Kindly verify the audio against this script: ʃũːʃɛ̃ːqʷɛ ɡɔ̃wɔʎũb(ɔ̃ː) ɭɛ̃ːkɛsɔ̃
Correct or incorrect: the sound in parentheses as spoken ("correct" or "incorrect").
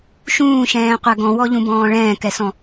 correct